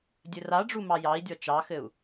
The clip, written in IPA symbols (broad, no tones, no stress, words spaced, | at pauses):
dʲɘraɖ͡ʐu mɑjɑi̯dʲɔ t͡ʃɑxɘu̯